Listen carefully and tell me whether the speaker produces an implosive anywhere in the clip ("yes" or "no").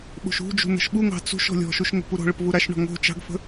yes